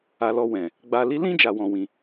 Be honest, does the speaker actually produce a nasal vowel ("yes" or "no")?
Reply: yes